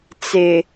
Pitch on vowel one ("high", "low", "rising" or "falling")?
low